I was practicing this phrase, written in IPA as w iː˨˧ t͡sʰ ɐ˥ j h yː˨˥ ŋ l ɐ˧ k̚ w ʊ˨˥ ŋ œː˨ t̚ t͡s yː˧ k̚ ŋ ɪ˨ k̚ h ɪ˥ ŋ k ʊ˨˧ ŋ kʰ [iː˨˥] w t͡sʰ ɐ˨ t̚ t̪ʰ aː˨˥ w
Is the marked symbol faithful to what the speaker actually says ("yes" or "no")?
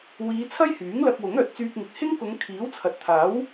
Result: yes